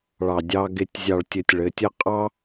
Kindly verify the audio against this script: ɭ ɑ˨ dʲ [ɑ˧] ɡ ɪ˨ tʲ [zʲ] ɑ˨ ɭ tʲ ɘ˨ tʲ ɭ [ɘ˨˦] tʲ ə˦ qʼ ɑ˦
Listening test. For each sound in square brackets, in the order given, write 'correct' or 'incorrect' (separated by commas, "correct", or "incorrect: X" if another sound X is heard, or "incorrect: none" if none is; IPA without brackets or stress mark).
correct, correct, correct